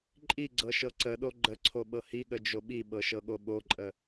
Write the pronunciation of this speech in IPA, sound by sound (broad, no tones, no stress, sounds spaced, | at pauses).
ǃʼ i ɡ͡ǀ ɤ ʃ ɤ ǀ ə ɗ o ɡ͡ǃ ə ǀʰ o ɓ ɤ h i ɠ ə d͡ʒ o ɓ i ɓ ɤ ʃ ɤ ɠ o ɓ o ǃʼ ə